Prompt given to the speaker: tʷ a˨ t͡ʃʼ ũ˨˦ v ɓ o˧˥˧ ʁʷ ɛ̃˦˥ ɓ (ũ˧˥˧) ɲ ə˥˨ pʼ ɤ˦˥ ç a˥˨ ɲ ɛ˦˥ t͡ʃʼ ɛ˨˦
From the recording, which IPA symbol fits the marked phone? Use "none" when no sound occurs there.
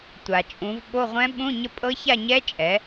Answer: ũ˧˥˧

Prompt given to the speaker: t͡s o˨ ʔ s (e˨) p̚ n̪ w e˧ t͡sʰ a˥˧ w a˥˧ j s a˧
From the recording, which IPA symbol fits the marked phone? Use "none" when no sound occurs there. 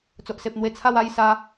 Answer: e˨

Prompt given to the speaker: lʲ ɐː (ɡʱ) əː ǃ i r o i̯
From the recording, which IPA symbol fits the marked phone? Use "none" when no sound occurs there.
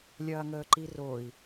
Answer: ŋ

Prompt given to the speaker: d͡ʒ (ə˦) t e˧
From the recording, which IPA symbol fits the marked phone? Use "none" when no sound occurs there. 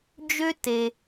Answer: ø˦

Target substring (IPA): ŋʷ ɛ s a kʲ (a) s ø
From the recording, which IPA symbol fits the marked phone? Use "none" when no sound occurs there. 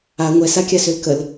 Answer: a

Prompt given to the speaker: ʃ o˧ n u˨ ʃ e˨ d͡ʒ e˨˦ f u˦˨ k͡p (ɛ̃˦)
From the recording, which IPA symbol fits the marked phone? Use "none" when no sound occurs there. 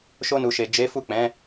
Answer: ɛ̃˨˦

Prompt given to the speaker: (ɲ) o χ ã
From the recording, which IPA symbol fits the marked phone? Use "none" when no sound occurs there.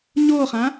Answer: ɲ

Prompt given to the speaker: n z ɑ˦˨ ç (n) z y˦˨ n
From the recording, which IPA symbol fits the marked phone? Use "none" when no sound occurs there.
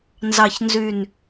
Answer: n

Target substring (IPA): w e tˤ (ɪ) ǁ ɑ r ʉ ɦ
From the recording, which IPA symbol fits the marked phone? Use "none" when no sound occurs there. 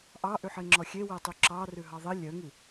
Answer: y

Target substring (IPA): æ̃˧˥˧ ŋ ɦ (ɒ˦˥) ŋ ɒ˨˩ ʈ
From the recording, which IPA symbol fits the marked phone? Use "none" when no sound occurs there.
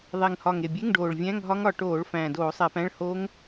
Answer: ɒ˦˥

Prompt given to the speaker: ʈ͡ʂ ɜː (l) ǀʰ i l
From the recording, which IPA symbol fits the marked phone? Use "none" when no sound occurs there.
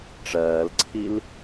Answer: l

